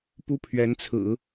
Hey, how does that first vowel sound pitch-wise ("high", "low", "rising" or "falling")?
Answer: high